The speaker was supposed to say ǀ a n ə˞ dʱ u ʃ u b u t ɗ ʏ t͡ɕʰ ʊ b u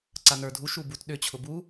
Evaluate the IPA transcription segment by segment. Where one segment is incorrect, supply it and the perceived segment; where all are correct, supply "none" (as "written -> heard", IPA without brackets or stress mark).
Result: none